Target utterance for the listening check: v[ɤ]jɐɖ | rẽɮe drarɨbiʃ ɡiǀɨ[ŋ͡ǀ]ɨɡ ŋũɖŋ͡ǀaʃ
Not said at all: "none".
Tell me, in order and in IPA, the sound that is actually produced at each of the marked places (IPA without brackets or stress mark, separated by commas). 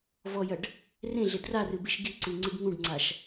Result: ɔ, ŋ͡ǀ